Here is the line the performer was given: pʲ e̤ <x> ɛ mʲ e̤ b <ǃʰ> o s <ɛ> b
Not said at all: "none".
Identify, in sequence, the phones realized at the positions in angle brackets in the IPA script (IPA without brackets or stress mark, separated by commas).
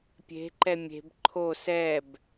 ǃ, ǃʰ, ɛ